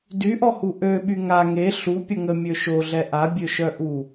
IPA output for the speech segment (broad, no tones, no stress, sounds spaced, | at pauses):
d y ʔ ɔ h u ʔ ø ɓ y ŋ a ŋ e ɬ u pʲ ə ŋ ə mʲ ø ʃ o ɮ ɛ ʔ a bʲ ø ʃ œ ʔ u